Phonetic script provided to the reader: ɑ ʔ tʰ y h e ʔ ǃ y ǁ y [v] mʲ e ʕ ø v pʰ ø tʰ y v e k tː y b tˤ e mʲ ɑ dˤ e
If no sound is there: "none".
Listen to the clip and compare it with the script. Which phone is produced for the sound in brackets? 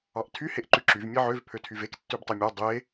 v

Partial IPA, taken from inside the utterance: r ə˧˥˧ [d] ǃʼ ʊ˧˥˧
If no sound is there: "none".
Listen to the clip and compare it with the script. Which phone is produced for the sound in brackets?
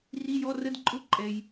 d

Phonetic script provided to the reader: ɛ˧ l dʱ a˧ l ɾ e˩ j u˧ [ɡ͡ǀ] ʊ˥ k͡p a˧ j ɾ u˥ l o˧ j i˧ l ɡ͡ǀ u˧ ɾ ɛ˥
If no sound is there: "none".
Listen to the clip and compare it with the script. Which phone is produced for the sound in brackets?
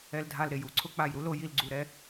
ǀʰ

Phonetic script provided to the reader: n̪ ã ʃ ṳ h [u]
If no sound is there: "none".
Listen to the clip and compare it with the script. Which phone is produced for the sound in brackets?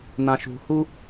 u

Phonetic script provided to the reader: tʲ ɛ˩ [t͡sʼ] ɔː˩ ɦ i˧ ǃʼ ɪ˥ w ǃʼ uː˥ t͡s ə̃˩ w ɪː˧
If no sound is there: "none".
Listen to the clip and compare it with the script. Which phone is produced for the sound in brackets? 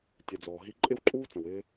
d͡z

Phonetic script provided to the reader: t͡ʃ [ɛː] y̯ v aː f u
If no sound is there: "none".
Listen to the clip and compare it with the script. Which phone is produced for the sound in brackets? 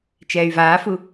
ɛː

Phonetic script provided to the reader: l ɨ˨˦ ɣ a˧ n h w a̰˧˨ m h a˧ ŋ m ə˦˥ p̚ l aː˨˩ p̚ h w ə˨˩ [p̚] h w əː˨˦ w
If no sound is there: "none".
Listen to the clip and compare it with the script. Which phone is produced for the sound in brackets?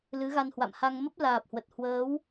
t̚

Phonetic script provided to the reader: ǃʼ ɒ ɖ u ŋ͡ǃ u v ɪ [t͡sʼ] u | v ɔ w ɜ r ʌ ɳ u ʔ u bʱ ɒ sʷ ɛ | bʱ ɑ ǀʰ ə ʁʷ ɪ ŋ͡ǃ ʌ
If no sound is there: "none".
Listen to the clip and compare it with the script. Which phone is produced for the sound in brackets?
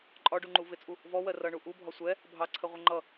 t͡sʼ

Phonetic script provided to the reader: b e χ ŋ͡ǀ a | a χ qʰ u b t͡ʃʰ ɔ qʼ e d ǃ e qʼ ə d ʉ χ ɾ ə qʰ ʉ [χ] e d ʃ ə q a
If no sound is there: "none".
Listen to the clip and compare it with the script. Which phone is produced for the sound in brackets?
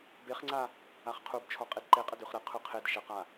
qʰ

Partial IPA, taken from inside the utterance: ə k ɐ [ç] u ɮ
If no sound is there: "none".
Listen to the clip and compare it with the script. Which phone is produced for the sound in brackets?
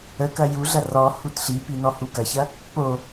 j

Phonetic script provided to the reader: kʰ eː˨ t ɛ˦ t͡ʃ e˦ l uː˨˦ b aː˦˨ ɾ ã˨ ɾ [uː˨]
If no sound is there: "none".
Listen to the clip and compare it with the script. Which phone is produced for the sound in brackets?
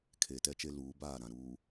uː˨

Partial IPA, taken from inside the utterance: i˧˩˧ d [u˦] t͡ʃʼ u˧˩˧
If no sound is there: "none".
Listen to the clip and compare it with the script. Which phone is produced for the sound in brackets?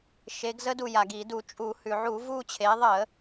u˧˩˧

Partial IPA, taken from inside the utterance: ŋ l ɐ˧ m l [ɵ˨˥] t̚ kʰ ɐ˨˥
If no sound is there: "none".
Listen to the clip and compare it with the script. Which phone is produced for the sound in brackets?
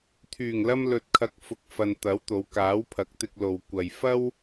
ɵ˨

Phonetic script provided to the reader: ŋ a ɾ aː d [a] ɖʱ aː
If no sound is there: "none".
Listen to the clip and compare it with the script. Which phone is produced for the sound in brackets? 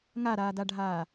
a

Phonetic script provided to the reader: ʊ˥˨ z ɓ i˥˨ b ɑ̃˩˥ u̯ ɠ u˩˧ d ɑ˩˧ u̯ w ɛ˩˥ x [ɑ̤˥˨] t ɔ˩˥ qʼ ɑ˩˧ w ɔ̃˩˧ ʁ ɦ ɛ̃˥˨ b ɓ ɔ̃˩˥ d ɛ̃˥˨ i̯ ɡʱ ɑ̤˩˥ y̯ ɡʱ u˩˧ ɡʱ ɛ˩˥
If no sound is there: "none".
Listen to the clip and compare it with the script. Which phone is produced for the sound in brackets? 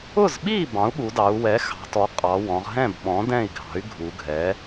ɑ̤˩˧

